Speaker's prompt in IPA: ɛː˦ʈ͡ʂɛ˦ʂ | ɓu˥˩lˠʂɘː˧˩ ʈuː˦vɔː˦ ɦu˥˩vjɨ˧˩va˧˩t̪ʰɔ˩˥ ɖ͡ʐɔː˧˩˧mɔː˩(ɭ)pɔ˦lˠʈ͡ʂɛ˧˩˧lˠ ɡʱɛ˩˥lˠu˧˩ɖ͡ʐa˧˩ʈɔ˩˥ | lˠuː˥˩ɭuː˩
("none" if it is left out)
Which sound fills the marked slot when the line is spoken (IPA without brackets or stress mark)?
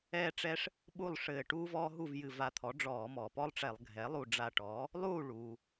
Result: none